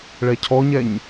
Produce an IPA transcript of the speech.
ɭ ɛ cʰ ɔ ɲ ɛ ɲ

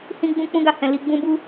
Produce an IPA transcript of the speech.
h ĩ˦ ɡ͡b ũ˦ k͡p ũ˦ ɡ a˧ h ɛ̃˨ l i˧ ɡ͡b ũ˦ b u˦

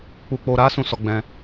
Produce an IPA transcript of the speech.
k͡p u˨ k͡p o˨ ɾ a˨˦ s ũ˦˨ s ɔ˨˦ ɡ͡b ɛ̃˧

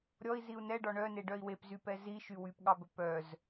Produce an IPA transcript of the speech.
ɾʲ ɔ i̯ z i u̯ n ɛ ɖ ɔ ɳ œ n e ɖ œ i̯ w e p z y p ɛ z i ʃ y w y p ɠ ɑ b ɵ p œ z

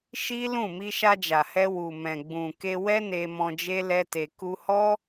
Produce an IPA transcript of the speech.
ʃ i˦ l ũ˦˨ m i˧ ʃ a˧ d͡ʒ a˨ h ɛ˧ w u˨ m ɛ̃˨ ɡ͡b ũ˨ k e˧ w ɛ˦ n e˧ m ɔ̃˧ d͡ʒ e˦ l ɛ˦ t e˧ k u˧ h ɔ˦

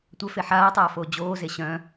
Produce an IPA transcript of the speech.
tʷ œ f e ħ aː tˤ aː f oː d͡ʑ oː z e ɕ œ̃

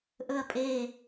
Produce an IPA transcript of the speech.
ʔ ɵ ɐ̯ pʼ e

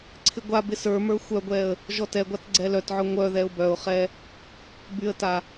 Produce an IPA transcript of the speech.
ǀʰ ɪ ɡʷ a b ɪ s ə˞ m ə˞ xʷ œ ɡʷ ɛ ə̯ | ʒ ɔ t ɛ ɡʷ a t ɡ͡ǀ ɛ l œ t ʕ œ ŋʷ œ ð ɛ ʊ̯ b œ ʊ̯ χ ɛ | b y ə̯ t a

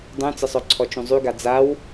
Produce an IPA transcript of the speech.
dˤ ũ t͡s ə sˤ œ ǀʰ ɔ t͡ʃ ũ zˤ y ɡ a d͡z a w

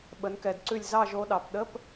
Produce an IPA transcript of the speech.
ɓ ə˩˧ n k ɛ˩ d ǀ ʉ˧˩ lʲ z ɑ˥˨ ʒ o˧˥ ɗ ɑ˩˧ p ɗ ə˧˥˧ p

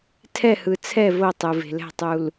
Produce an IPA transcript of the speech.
tʰ ɛ˦˨ h ɯ˨ t͡sʰ ɛ˦˨ v o˦˨ tˤ ɯ˨ v e̤˨ l ɛ̤˦˨ tˤ u˨ l

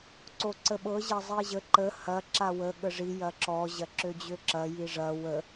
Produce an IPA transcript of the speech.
ǀ o ǀ ə ɓ ɤ ʑ ɐ zˤ i ʑ ə ǃ ə h ɐ ǁ a w ə ɠ ə ʐ i j ɐ ǁ ɔ ʑ ɐ ǁ ø d͡ʑ ø ǁ ɐ j i ʐ ɐ w ə

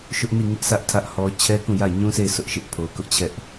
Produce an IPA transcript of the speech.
ʃ ʊ˦ ʔ n i˦˨ ŋ ɪ˦ ʔ s ä˦ ʔ tʰ ä˦ ʔ h ɔ˦ t͡ɕʰ ɛ˦ k ũ˦˨ j a˦˨ ɪ̯ ɲ ũ˦ sʰ e˦˨ ɪ̯ s ʊ˦ ʔ ʃ ɪ˦ ʔ pʰ o˨ k ʊ˦ ʔ t͡ɕʰ ɛ˦ ʔ

